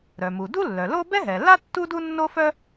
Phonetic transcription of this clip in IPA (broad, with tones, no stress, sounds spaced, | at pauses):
ɾ œ˩ m u˩ d u˥ lː œ˩ l o˥ b ɛ˥ ɦ ɛ˩ l a˥ tː u˥ d u˥ nː o˥ f œ˥